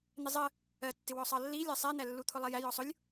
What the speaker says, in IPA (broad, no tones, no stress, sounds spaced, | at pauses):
n̪ ɪ zˤ ə | ɜ tː ɪ w ɔ sˤ ɑ lː i lʲ ɑ sˤ ɛ n̪ æ lː u t̪ʰ ʊ lˠ ɛ j æ j ɔ sˤ ʊ lʲ